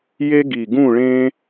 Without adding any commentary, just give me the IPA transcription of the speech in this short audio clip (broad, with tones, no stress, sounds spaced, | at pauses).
j e˦ ɡ i˨˩ ɡ ũ˦˨ ɭ ẽ˦